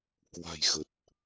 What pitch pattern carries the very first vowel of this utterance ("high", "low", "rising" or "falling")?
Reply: low